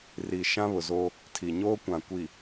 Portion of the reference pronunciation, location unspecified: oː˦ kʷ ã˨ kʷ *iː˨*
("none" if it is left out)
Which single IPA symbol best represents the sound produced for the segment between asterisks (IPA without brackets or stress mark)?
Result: i˨